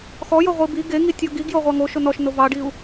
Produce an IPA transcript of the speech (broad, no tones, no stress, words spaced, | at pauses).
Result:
xɔjo ʁʷibi ɡeŋi tʲɔɡiɡjo ʁʷɑŋoʃo nɔʃno vɑɖiu̯